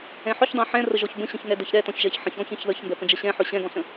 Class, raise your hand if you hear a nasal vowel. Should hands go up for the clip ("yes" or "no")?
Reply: yes